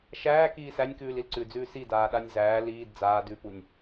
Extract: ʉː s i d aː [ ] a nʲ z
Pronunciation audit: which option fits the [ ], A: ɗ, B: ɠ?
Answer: A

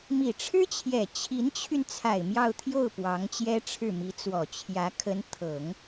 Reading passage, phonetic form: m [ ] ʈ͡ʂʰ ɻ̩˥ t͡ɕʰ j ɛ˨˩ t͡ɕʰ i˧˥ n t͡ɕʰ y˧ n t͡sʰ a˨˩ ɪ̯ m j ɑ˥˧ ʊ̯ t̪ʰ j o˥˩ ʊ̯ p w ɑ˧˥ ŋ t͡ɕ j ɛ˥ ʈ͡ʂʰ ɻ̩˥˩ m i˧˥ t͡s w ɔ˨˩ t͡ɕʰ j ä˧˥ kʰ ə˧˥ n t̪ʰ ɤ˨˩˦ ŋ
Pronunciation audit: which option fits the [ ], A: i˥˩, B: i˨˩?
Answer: B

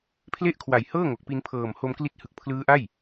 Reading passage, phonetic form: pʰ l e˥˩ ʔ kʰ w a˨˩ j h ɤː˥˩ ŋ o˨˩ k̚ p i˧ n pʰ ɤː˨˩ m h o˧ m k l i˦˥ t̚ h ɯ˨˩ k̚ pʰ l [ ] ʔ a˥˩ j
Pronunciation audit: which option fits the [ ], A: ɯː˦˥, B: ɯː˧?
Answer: A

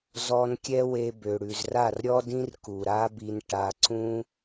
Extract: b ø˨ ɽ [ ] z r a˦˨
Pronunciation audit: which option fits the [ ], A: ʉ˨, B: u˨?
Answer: A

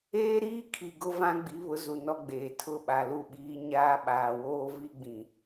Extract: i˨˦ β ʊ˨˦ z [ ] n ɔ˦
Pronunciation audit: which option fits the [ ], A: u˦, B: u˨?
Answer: B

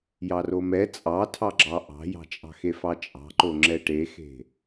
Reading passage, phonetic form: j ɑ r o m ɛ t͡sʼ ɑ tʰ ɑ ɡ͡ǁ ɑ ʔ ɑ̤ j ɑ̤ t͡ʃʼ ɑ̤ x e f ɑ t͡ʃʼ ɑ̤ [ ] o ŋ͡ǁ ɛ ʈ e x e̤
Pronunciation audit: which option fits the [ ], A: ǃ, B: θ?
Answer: A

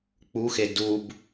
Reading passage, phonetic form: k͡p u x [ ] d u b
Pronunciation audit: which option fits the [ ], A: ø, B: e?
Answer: B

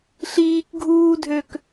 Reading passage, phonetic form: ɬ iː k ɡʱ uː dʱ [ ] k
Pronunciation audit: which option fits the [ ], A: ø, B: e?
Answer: A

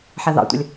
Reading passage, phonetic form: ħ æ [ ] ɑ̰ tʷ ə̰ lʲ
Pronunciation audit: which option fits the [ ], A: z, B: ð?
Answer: B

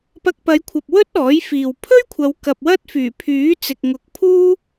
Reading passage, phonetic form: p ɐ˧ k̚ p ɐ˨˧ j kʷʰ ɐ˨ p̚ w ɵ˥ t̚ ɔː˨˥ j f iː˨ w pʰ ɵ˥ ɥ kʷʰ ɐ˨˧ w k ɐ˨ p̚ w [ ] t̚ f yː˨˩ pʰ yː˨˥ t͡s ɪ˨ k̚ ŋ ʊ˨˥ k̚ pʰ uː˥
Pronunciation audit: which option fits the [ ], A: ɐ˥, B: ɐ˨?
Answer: A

